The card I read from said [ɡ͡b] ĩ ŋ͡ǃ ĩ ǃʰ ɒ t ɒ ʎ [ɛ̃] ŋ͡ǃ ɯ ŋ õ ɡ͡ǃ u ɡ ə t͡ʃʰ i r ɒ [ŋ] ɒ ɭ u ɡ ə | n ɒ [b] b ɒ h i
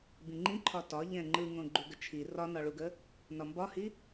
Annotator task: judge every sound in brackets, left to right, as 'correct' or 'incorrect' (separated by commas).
incorrect, correct, incorrect, incorrect